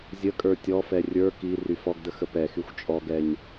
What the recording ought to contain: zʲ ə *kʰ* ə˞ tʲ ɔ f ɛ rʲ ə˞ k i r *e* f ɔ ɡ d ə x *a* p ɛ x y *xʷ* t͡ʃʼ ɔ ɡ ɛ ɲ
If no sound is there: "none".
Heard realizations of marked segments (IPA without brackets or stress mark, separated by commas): kʼ, y, ə, xʷ